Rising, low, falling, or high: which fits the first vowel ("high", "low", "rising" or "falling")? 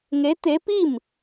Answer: rising